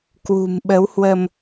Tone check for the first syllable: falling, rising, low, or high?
low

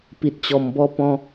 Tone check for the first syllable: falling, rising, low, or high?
low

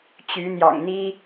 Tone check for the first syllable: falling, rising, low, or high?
rising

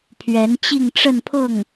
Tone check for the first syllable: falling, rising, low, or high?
rising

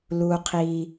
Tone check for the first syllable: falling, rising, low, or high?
low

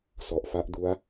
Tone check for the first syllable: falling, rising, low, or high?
low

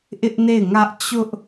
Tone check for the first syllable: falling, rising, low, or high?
high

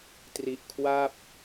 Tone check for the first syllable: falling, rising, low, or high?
low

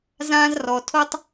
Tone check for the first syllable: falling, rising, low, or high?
high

